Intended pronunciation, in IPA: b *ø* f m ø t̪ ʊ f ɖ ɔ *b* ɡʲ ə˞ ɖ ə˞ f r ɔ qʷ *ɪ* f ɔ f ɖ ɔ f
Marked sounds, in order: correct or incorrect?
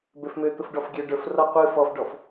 correct, incorrect: f, incorrect: ɨ

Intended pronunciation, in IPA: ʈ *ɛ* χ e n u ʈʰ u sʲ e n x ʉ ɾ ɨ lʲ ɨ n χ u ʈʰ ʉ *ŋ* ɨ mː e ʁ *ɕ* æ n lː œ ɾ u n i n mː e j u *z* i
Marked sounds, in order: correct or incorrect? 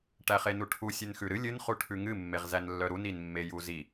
incorrect: æ, correct, incorrect: z, correct

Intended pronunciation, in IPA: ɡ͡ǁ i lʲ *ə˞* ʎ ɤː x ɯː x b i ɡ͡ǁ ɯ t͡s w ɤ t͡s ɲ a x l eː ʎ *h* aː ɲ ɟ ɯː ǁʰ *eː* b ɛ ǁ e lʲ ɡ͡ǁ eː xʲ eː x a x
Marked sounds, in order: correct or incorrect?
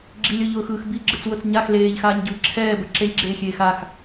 incorrect: ɤ, incorrect: x, incorrect: ɛː

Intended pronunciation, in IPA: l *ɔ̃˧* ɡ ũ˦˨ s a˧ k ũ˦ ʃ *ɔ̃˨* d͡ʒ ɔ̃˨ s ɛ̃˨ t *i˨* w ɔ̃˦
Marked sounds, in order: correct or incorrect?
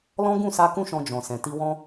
incorrect: ɔ̃˦, incorrect: ɔ̃˧, incorrect: i˧

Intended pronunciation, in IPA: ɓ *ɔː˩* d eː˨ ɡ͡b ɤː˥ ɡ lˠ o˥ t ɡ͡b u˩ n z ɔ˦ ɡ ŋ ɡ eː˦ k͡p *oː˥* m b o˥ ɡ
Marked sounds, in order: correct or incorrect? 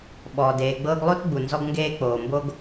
correct, incorrect: oː˩

